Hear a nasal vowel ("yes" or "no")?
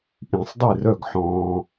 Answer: yes